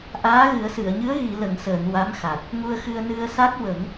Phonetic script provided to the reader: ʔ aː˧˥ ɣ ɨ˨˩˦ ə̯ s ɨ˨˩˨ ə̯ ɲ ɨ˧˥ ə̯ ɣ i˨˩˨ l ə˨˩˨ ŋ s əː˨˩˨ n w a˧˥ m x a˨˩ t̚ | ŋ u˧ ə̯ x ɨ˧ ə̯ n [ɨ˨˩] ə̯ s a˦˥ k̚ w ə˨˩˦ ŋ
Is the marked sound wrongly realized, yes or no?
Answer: yes